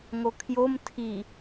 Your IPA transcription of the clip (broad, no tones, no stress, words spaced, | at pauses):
ŋokʰjom tʰi